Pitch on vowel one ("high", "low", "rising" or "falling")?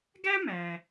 high